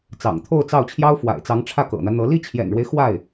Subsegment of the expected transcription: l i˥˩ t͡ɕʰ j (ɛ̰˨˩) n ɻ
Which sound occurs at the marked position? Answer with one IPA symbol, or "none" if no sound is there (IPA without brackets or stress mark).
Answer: ɛ̰˨˩